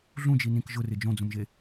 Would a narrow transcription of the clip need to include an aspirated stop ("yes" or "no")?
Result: no